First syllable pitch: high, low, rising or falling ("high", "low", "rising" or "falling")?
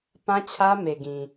high